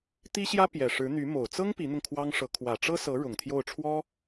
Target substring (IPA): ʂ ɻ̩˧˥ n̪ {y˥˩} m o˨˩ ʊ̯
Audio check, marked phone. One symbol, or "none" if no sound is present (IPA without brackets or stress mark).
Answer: y˧˥